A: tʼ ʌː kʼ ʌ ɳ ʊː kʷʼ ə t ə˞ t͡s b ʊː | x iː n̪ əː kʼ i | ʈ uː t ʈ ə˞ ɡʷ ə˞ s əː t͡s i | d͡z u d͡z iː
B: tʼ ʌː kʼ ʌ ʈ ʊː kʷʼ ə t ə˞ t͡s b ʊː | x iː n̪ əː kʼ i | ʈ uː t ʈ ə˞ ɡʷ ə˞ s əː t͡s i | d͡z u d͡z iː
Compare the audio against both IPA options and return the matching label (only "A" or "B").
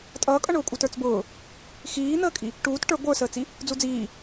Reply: A